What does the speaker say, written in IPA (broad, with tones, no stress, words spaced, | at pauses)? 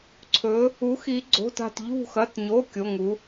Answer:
ǀʰɵ˩˧ | u˩˥xi˩˧ɡ͡ǀo̤˩˧˩ta̤˧˩t ʎṳ˧˩xɐ˩˧˩tɲo˩˧˩ kʲo˩˧˩ŋu˩˧